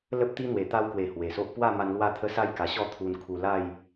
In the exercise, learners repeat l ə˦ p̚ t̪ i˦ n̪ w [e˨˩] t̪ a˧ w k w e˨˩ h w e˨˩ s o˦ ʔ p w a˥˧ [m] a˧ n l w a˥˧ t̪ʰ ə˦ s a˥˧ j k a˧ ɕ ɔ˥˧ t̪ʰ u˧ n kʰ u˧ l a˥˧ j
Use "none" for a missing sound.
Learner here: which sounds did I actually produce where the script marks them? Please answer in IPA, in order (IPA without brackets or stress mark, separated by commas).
e˨˩, m